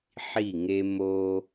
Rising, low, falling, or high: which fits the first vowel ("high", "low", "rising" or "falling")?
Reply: falling